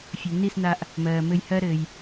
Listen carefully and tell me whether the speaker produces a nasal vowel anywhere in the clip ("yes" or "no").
no